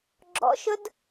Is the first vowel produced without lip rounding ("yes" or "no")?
no